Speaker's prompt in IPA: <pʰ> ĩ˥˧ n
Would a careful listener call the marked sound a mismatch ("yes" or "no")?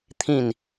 yes